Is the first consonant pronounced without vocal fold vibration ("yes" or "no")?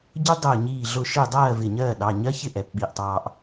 no